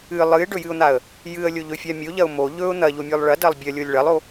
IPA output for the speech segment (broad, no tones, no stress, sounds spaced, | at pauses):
ɨ lˠ ɨ ɪ̯ ɖ ɵ j ɨ ʊ̯ n̪ a ə̯ | j ɨ ə̯ lʲ o ʎ ɵ fʲ a mʲ o ʎ ɐ ʊ̯ m o ʎ ɵ ʊ̯ n̪ ɐ ʎ o mʲ o lˠ ɭ ɐ d ɐ lˠ bʲ ɐ lʲ o lʲ ɭ ɐ lˠ o